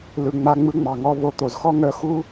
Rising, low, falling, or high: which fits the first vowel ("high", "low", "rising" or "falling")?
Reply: low